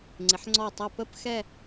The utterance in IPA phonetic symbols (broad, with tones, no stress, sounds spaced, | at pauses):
ŋ͡ǀ ɪ˩˧ ħ ŋ͡ǀ ɔ˧˩ tˤ ʌ˧˩ p ə˥˧ p x ɛ˥˧